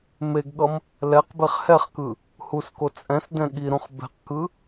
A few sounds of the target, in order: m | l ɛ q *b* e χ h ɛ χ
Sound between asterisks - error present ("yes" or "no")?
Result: no